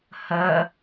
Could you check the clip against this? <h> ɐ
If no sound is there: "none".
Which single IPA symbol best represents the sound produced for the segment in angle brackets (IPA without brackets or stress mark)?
h